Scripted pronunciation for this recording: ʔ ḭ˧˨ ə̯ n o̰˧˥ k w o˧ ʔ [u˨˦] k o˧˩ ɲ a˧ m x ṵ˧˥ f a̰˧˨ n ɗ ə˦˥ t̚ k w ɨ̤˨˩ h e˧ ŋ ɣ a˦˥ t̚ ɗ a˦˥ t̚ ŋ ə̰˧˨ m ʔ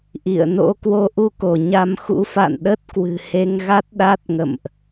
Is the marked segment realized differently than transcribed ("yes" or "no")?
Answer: yes